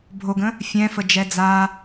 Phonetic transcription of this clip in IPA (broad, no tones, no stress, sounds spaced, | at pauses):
bʱ o ɡ ə̃ | fʲ ɛ̃ f ə d͡ʒ ɛ d͡z a